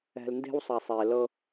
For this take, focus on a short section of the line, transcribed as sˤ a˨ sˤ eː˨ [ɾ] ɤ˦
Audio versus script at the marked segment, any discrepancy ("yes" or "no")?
yes